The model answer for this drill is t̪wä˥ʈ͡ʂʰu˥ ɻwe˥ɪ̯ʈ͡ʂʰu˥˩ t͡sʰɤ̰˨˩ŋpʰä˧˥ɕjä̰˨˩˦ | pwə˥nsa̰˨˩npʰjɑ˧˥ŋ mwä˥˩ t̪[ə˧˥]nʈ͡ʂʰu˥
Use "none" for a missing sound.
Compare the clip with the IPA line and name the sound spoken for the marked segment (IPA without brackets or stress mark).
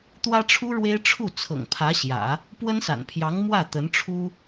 ə˧˥